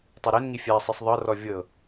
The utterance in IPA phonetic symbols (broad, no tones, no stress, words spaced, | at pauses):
tˤaɾenŋi fʲasˤisˤ ðˤɤrɔ vʲɤ